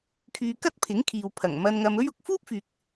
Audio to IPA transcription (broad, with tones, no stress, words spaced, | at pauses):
kʰyː˧kɐ˥t̚pʰɪ˨˥ŋkʰiː˨w pʰɐ˨˩ŋmɐ˧nŋɐ˧m ɵ˥ɥʊ˨˥k̚ fuː˥p̚fyː˨k̚